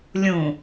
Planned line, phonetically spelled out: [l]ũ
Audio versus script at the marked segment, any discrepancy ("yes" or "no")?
yes